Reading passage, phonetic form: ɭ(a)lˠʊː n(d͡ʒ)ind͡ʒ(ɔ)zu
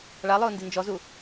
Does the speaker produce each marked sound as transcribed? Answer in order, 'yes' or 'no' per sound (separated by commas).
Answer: yes, no, yes